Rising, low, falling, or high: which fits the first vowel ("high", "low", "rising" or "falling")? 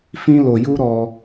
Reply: high